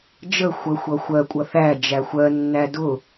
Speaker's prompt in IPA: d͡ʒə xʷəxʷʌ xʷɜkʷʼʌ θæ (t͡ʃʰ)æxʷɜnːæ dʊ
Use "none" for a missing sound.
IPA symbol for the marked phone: d͡ʒ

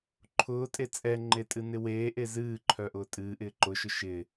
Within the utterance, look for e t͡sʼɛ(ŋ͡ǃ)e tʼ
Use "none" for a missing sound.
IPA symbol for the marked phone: ŋ͡ǃ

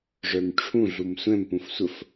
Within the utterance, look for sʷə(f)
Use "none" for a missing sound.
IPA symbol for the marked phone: f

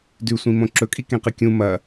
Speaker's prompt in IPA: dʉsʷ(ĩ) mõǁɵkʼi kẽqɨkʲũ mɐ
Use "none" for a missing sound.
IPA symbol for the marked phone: ĩ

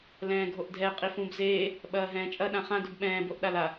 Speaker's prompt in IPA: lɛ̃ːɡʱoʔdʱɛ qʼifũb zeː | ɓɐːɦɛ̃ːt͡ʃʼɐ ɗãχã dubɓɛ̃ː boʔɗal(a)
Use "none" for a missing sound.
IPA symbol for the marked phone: a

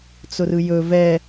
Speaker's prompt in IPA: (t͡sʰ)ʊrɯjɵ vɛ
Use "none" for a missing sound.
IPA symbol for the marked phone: t͡s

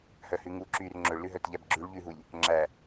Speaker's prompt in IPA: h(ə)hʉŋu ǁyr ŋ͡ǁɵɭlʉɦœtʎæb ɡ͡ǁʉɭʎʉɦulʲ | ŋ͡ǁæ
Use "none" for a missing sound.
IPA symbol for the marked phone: œ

